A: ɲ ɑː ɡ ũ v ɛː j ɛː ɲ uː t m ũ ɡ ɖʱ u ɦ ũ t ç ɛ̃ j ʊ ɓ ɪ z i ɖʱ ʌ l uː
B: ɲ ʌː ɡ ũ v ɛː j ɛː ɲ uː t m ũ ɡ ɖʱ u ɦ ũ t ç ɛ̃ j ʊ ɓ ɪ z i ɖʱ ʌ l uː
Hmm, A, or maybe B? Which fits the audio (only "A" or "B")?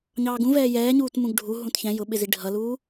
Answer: A